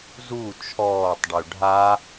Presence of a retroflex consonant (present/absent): present